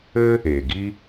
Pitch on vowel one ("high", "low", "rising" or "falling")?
high